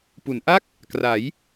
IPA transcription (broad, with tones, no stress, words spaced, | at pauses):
pu˩˦nʔa˥˩k̚ | kra˩˦j